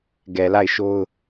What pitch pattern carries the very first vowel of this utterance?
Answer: low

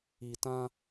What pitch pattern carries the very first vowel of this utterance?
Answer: low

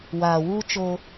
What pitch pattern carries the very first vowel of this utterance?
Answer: low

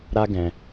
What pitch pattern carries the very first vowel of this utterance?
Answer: high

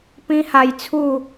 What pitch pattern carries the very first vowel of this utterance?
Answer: high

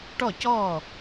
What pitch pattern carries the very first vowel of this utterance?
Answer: falling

